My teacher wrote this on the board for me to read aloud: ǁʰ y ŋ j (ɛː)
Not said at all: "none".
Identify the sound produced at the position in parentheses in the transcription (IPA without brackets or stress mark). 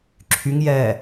ɛː